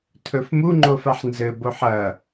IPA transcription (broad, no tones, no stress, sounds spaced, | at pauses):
tʰ ɵ f m u ŋ͡ǃ o f a ħ n z ɘ b o ħ ɐ